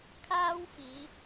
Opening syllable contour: high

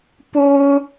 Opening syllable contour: high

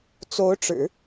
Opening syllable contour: rising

